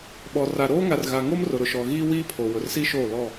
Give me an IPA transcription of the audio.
ɓ ɔ˨ r a˨ ɾ oː˦ ŋ a˨ r ɣ a˨ ŋ o˦ m r ʊ˨ ɾ ʊ˨ ʃ ɔ˨ ɣ iː˦ w iː˦ pʰ o˨ w ʊ˨ r s i˦ ʃ oː˦˨ l ɔ˦˨

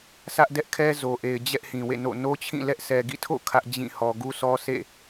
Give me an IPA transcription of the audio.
sʰ ä˦ ʔ d ɛ˦ ʔ kʰ ɛ˦ z o˨ ʔ e˨ ɪ̯ d͡ʑ ɛ˦ ʔ h ĩ˨ w ḛ˦˨ n o̰˦˨ n o˦ t͡ɕʰ ĩ˦˨ l ɛ˦ ʔ s ɛ˨ ɡ ḭ˦˨ tʰ o̰˦˨ kʰ ä˦ ʔ d͡ʑ ĩ˦˨ h ɔ˨ ɡ u˦ s ɔ˦ sʰ ḛ˦˨

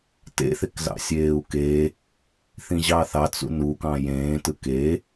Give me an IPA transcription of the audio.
t ḛ θ e k z ɑ̰ sʲ eː u̯ k e | θ ĩ ʑ ɑ θ ɑ t͡s ṵ n u k ɑ̃ j ẽː t ɯ k e

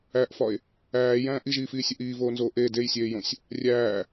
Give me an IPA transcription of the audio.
æ ʔ f ɒ e̯ | æː j æ̃ː ʔ i ʒ iː f iː sʲ u ʔ iː v oː n z oː ʔ e d e j sʲ eː j õ sʲ | rʲ æː

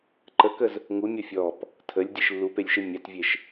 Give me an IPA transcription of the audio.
ǃ ə k ə z | ŋ u mʲ ɔ fʲ ɔ p | tʰ ə lʲ dʲ e ʃ lː u p e lʲ ʃ e mʲ a t vʲ e ʃ

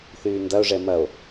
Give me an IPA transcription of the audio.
θ yː n d ɐ o̯ ʐ ɛ m ɐ o̯

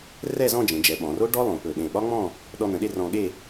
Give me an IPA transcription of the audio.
r ɛ˥˧ z ɔ̃˥˧ d͡ʒ ẽ˩˧ d͡ʒ ɛ˩˧ ɓ ɔ̃˩˧ r o˥ ɖ ɔ˥ lˠ õ˩˧ p ɵ˧˩ ɗ ẽ˧˩ ɓ ɒ˥ ŋ͡m ɔ̃˥˧ | ɗ ɔ˧ n̪ ə̃˩˧ ɗ e˥˧ r ɔ̃˧ ɠ e˥˧

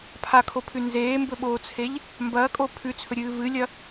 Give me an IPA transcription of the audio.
pʰ a kʰ o pʰ ʉ n z eː m b ɵ ɓ oː t͡sʰ e ʎ | m b ɐː kʼ o pʰ ʉ t͡sʰ ɵ ɾʲ ɨː v ɨ lʲ ɐ

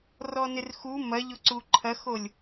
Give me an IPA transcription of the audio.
r ɔ n ɪ r x u m ɐ ʎ ʊ ǀ u ǃʰ ɐ x o lʲ

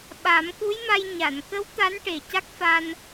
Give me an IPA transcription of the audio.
ɓ a˨˩˦ m k u˧˥ j m a˧ j ɲ a˨˩˨ n k ə˧˥ w t̪ a˧˥ n ʈ e˨˩ c a˦˥ k̚ f a˧ n

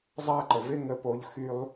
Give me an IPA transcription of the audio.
zˤ a˦ ǃ ə˨ v ɪ˦ ŋ ə˧ p o˧ ʎ x y˦ lˠ

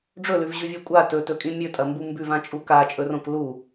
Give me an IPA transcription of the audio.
ɖ͡ʐ ɵ l ʉ v ʑ ʉ vʲ o kʷʼ a t ɵ t ɵ kʼ ĩ mʲ ɵ tʼ ɐ m b u m b ʉ v ã t͡ʃʼ u k a t͡ʃʼ ɵ r õ k l u

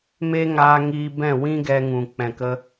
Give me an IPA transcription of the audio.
m e˦ ŋ aː˧ ŋ iː˧ b ɛ̃˦˨ w ĩ˦ ɡ ɛ˧ ŋ ũ˨ k͡p ɛ̃˨ k ə˧

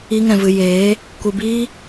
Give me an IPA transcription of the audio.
i˦ ŋ ɛ̃˧ v ɨ˧ j eː˨˦ | kʷ ɨ˧ b iː˦

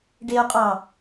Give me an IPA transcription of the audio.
ɖ e o̯ qʼ ɑ

